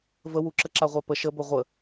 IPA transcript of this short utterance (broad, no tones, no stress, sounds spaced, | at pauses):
v ə w u ǁ ə ǁ a ʁʷ a p ə ʃ ə b ɵ ʁʷ ə